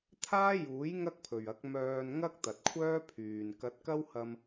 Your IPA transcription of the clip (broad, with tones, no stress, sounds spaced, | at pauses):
t̪ʰ aː˥ j uː˨˥ j ŋ ɐ˥ k̚ pʰ ɵ˨ ɥ ɐ˨˥ k̚ m œː˧ n ŋ ɐ˥ k̚ t̪ ɐ˨ t̚ kʷʰ œː˥ pʰ yː˨ n k ɐ˨˥ t̚ k ɐ˥ w h ɐ˧ m